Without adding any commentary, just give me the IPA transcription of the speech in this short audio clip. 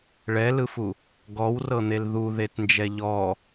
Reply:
ɭ ɛ l ɯ f u | ɡ ɔ w r ɤ n̪ e l ð u ð e t n d͡ʒ ɛ ʎ ɔ

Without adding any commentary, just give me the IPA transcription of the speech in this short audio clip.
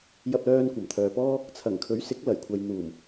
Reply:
j ɐ˧ p̚ l œː˧ n kʷ ɐ˨˩ m t̪ʰ œː˨ p ɔː˥ | t͡sʰ ɐ˨˩ ŋ kʰ ɵ˨˥ ɥ s ɪ˨˥ k̚ l ɐ˨˩ j kʷʰ ɐ˨ j n̪ uː˨˩ m

